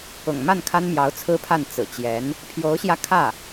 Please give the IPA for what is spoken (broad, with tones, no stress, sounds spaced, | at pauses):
ʊ̰˨˩ ŋ m a˥˩ n kʰ a˥ n m j ɑ˧˥ ʊ̯ t͡sʰ ɹ̩˥ pʰ a˥˩ n t͡s ɹ̩˨˩ t͡ɕ j ɛ˧˥ n | pʰ j o˧˥ ʊ̯ ɕ j ä˧ kʰ ä˥˩